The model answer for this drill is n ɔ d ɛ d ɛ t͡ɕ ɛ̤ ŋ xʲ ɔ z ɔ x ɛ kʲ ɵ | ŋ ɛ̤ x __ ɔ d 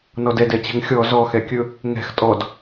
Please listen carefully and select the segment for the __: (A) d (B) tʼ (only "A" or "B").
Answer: B